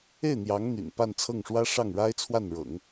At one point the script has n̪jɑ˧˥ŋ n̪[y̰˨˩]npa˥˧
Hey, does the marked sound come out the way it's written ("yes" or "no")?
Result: yes